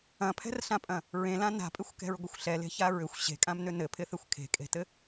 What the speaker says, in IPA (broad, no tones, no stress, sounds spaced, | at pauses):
ɐ̃ pʰ ɛ̤ r ɬ ã pʼ ɐ̃ | ɹ ẽ l ã n a̤ pʼ ɪ xʷ k ɛ̤ ɹ ɡʷ ɪ xʷ ɬ ɛ l e̤ ç a ɹ ʏ xʷ ɕ e̤ kʼ ã m n ʏ n ɘ pʰ ɪ θ ɪ xʷ kʰ e̤ kʼ e̤ t ɘ